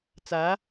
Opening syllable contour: rising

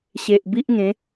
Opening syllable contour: low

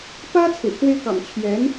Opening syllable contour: high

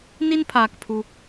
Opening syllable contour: high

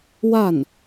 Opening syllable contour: falling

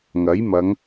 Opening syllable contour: rising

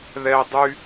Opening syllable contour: high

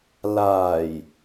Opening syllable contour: low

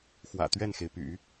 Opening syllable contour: low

